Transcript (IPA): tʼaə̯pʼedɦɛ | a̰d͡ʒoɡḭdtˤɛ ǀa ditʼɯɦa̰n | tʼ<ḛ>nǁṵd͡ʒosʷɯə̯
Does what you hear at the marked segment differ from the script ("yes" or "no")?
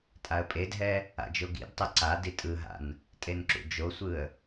yes